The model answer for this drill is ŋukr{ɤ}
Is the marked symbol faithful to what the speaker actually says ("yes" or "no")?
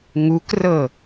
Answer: yes